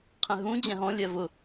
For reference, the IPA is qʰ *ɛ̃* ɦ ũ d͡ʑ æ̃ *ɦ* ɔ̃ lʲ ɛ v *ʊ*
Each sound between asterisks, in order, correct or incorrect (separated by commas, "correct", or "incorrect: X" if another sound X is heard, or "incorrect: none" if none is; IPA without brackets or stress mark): correct, correct, correct